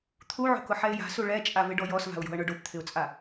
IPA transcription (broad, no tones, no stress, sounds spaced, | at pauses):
t̪ʰ u ʕ o̤ k ʊ ħ ɛ ɪ̯ j a̤ s u ɭ ɛ t͡ʃʼ a v ɪ ɖ ɔ j ɔ s v a̤ ʊ̯ j o̤ ə̯ ɳ ʊ ɖ o p t̪ʰ ɪ ʊ̯ t͡sʼ a